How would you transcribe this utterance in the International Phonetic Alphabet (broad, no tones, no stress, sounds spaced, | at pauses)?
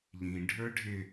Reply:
ʎ ĩ ɖʱ ə˞ ɖʱ ɪ